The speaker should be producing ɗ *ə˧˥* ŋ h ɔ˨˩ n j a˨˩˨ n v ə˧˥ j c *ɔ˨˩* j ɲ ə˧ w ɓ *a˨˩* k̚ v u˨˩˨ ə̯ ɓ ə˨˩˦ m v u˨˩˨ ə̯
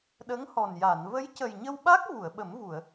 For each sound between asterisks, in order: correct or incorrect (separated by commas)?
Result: correct, incorrect, incorrect